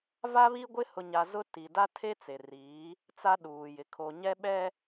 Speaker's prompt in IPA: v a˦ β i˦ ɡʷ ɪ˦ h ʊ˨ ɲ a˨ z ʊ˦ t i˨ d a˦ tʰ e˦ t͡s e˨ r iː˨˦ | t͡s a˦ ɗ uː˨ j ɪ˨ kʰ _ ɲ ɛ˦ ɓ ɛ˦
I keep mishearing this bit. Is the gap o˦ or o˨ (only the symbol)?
o˨